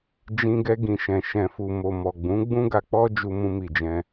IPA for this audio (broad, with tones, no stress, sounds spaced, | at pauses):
d͡ʒ ĩ˧ ɡ ɛ˧ ɡ ĩ˨ ʃ ɛ̃˨ ʃ ɛ̃˨ f u˨ m o˨ m ɔ˨ ɡ͡b ũ˨˦ ɡ͡b ũ˦ ɡ a˧ k͡p ɔ˦ d͡ʒ u˧ m ũ˧ m i˨ d͡ʒ ɛ̃˧